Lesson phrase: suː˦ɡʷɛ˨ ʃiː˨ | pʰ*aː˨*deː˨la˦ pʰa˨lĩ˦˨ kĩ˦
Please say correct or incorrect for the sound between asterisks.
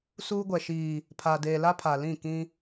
correct